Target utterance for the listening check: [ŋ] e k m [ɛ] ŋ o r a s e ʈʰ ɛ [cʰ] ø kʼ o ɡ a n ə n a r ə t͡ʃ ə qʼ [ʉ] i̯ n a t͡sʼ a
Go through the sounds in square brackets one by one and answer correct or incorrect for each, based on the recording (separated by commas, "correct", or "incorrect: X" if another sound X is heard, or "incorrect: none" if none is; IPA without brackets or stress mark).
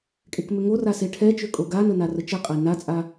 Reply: incorrect: kʼ, incorrect: ø, incorrect: t͡ʃ, incorrect: ə